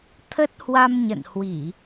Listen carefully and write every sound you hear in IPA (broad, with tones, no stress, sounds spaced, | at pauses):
t̪ʰ ə˦˥ t̚ h w a˧ m ɲ ə̰˧˨ n h w i˧˩˨